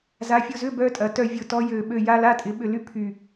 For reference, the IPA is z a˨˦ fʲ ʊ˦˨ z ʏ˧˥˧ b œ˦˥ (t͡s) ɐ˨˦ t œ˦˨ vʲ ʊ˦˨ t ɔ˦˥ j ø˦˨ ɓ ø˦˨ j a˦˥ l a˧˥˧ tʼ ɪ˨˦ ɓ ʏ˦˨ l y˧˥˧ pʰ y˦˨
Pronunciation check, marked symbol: incorrect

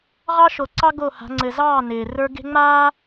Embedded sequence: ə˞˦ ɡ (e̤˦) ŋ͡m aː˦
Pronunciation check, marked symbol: correct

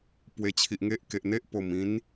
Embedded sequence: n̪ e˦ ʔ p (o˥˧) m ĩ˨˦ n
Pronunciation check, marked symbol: incorrect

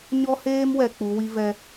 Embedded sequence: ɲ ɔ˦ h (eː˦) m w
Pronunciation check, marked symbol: correct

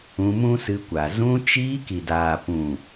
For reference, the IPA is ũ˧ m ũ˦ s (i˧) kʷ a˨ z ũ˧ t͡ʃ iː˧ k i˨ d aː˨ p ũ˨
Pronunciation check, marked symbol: incorrect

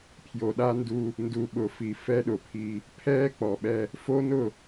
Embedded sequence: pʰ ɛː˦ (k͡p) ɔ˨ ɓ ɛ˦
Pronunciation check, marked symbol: correct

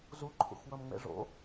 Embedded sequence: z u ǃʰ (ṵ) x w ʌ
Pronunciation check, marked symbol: correct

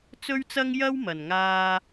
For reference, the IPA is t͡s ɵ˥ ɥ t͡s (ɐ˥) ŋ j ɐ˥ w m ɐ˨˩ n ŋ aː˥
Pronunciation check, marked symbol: correct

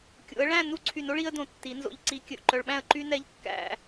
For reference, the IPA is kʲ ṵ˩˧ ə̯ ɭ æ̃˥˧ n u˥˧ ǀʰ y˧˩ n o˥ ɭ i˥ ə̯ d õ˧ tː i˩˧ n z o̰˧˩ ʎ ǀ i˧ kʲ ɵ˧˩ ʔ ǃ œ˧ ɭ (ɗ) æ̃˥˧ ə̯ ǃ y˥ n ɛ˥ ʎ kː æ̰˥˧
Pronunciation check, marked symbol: incorrect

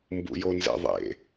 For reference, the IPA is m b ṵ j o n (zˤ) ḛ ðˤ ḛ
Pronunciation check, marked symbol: incorrect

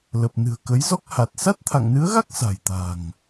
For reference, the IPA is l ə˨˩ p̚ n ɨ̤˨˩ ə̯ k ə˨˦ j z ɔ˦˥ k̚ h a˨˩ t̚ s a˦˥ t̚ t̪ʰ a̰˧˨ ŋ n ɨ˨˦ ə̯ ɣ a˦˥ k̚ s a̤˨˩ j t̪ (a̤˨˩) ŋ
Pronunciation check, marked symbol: correct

